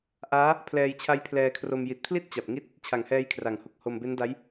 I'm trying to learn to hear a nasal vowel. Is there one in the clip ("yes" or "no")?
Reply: no